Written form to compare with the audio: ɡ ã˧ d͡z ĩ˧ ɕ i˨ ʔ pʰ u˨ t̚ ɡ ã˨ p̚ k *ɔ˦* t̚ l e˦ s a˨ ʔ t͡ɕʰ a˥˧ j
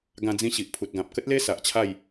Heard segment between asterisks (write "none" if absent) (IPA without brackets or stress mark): ə˦